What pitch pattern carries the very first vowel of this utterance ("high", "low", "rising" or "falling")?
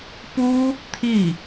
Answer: high